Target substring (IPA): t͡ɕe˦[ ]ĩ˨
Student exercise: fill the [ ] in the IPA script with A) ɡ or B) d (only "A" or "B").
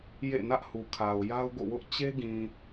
A